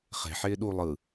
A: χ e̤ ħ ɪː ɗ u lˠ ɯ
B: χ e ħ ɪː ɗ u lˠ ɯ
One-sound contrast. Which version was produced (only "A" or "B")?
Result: A